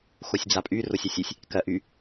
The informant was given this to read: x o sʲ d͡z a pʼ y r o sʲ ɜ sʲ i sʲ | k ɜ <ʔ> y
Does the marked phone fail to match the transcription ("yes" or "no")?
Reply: no